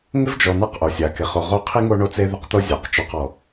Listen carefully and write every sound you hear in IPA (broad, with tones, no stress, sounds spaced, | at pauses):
ŋ ɪ˥ v d͡ʒ ɔ˨ n a˦ q ʔ o˩ sʲ a˩ k ɪ˩ χ o˨ ʁ o˦ qʰ i˥ ŋ o˦ ɳ o˦ t͡s e˦ ð ɪ˦ q t̪ o˦ zʲ a˩ q t͡ʃ ɔ˨ q ɔ˩